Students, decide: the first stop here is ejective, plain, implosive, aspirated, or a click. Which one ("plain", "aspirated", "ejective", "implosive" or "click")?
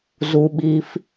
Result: implosive